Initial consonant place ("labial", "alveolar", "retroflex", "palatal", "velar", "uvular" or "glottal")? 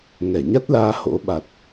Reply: velar